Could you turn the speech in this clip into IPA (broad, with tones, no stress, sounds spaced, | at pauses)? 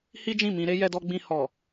h i˦ d͡ʒ ĩ˦˨ m ĩ˧ ɾ e˦ j ɛ˧ d ɔ˧ ɡ͡b ĩ˧ h ɔ˨